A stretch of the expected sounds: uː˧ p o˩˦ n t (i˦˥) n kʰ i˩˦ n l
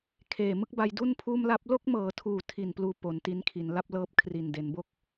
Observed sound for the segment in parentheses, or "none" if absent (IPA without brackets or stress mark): i˦˥